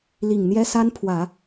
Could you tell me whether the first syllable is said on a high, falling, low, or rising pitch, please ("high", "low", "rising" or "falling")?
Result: low